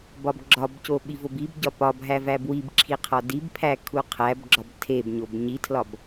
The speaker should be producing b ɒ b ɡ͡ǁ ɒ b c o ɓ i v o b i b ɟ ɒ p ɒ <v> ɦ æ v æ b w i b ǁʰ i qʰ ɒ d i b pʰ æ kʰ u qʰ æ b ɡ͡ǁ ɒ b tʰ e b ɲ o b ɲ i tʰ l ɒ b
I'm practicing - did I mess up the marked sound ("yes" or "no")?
yes